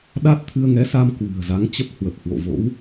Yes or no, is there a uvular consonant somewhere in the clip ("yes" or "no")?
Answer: no